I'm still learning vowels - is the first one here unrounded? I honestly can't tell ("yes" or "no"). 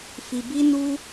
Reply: yes